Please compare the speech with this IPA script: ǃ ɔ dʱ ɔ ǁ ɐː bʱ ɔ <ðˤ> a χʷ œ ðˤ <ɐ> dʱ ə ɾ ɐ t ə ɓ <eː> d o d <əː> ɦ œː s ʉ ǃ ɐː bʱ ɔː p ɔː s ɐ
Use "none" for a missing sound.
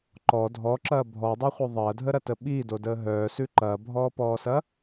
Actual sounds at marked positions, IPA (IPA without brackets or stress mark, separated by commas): dˤ, ɐː, iː, əː